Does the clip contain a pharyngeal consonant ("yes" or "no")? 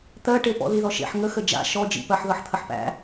yes